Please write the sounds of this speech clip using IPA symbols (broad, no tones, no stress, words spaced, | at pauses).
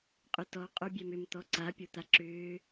qʼʏtɔ qʼobʲɛmʏm t̪ɔǀa pʲot̪aǁʏː